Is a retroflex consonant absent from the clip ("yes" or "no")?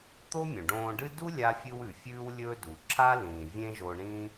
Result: no